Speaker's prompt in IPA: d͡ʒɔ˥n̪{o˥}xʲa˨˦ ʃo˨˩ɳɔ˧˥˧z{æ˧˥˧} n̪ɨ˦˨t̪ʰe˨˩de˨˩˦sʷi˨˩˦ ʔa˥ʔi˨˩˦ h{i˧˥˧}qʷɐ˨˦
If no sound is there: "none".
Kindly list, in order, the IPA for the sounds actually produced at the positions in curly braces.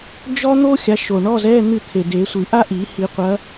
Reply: o˥, ɛ˧˥˧, i˨˩˦

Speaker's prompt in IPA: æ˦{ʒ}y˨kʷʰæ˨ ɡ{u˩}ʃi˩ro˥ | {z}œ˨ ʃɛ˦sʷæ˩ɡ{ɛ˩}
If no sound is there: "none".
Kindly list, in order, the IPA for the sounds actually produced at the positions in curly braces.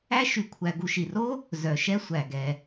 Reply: ʃ, u˨, z, ɛ˩

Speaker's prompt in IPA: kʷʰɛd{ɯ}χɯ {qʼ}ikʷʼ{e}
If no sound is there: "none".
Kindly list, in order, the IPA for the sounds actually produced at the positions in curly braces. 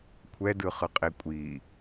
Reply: ɯ, qʼ, i

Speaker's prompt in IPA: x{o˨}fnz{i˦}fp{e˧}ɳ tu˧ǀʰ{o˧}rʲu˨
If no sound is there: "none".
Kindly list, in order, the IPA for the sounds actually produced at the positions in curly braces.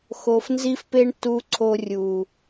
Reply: o˨, i˧, e˧, o˧

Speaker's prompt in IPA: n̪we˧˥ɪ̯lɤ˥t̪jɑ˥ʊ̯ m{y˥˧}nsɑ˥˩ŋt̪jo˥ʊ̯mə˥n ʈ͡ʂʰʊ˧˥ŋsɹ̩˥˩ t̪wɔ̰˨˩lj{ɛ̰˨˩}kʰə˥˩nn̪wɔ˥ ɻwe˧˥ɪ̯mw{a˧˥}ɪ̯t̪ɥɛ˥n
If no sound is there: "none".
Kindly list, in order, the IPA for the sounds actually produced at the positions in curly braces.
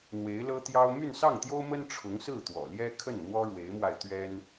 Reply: y˥˧, ɛ˥, a˧

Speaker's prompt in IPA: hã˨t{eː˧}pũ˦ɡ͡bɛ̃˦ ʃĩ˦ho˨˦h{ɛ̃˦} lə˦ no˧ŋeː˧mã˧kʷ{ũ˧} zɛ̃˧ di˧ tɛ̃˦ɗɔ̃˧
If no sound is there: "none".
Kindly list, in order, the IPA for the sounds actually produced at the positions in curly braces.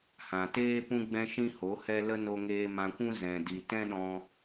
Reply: eː˦, ɛ˦, ũ˦

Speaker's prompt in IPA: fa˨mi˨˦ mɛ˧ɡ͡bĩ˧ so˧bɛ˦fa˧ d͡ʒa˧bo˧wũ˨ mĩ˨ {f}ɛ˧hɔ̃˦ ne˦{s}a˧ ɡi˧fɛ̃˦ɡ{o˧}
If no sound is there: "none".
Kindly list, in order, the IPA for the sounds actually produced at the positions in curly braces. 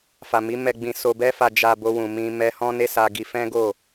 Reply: m, s, o˦˨

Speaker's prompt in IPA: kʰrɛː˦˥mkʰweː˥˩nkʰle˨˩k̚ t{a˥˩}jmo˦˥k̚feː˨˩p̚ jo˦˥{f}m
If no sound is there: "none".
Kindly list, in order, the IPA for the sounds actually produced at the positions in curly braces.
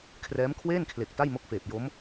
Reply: a˥˩, none

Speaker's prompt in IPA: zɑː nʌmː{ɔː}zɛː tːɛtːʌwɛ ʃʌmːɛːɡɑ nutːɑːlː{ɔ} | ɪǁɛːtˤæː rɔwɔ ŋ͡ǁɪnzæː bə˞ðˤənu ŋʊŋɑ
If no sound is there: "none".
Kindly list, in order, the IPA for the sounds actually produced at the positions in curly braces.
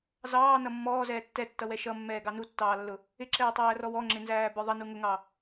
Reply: ɔː, ʊ

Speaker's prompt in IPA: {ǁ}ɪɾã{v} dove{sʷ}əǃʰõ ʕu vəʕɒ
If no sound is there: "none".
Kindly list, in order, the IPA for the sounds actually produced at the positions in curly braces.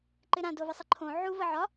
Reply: ǃ, none, sˤ

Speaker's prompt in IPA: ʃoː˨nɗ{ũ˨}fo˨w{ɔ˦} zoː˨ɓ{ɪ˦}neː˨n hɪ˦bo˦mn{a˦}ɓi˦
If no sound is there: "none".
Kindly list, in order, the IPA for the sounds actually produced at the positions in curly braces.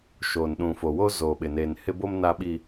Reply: ũ˨, o˦, ɪ˨, a˦

